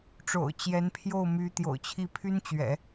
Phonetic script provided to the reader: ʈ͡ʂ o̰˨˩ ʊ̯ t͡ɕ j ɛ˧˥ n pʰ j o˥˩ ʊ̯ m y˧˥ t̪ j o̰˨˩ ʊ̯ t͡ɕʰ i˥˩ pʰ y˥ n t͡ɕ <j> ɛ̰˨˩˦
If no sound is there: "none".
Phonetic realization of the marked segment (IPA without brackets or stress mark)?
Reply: ɥ